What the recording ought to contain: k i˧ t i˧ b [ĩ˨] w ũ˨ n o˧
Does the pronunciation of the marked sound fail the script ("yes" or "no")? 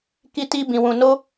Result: no